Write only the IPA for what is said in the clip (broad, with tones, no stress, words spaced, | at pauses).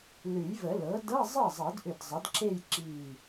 lʉ˨˩˦jvə˨˩˦lɤ˩˥ dɤ˧˥˧zˤɤ˥˩zˤɤ˨˩˦dʔʏ˧˩d zˤə˩˥dǁe˥˧jǁi˧˩